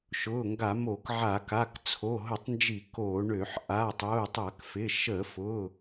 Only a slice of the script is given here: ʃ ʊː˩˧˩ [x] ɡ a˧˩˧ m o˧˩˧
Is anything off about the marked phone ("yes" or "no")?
yes